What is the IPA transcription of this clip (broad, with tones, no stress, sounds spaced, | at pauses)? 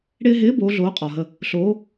ɽ ɪː˧ ɦ ɪː˨˥ b oː˨˥ ɮ oː˨˥ qʼ ɒ˨˩ ɦ ə˧ | ɬ oː˨˥